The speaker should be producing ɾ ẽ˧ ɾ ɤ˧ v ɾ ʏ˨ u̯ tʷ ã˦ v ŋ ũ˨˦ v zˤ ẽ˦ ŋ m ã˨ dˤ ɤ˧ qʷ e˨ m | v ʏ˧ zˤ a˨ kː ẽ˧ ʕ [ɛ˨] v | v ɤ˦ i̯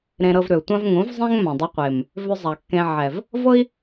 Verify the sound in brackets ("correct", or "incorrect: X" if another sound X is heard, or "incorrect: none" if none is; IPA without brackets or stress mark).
correct